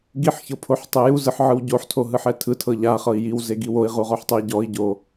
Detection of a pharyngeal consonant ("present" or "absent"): present